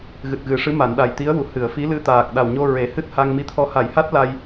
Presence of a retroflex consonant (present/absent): present